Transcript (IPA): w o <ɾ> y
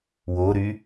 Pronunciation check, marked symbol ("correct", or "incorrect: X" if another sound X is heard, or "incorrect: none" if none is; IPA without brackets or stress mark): correct